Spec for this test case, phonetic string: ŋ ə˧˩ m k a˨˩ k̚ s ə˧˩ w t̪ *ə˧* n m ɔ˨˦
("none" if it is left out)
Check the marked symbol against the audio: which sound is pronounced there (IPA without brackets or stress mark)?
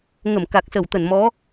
ə˧˩